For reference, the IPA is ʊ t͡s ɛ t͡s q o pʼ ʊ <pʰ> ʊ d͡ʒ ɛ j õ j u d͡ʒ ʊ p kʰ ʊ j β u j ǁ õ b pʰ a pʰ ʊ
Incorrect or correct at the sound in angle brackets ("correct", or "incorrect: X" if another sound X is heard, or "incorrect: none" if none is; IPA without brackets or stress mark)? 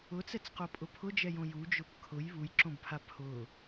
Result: correct